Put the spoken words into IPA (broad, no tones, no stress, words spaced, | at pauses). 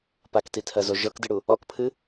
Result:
paktitʰɜzo ʒɤkdɨɽu | ɔkpʰɨ